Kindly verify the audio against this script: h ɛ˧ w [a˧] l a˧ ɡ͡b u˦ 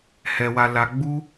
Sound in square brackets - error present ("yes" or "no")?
no